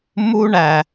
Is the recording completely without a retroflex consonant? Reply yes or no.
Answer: no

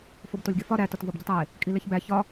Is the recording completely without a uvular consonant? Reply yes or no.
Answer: yes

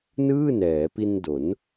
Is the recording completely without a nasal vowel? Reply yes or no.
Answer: yes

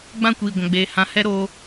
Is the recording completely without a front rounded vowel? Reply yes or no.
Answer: yes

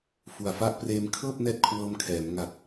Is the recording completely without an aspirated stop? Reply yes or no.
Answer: no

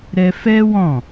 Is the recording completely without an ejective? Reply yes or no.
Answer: yes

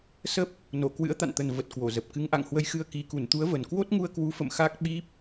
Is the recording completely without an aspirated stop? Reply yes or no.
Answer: yes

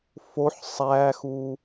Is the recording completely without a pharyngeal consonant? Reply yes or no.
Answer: no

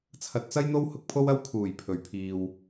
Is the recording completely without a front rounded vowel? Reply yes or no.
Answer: yes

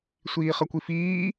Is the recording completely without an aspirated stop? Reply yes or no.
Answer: yes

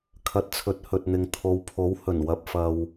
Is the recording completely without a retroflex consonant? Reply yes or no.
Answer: yes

